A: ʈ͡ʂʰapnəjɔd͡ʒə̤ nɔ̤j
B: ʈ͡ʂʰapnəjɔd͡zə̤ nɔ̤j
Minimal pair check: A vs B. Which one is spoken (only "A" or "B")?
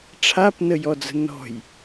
B